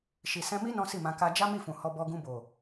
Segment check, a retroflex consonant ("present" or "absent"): absent